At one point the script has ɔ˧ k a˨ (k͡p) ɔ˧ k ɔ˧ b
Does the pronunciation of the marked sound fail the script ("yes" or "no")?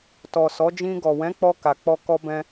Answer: no